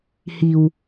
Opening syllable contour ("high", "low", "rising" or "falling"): low